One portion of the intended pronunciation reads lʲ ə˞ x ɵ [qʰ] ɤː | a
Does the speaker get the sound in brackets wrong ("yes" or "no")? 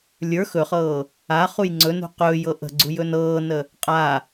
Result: yes